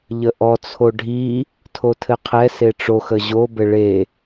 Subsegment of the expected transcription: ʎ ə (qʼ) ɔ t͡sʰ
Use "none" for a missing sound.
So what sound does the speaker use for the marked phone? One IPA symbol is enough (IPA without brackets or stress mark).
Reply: ʔ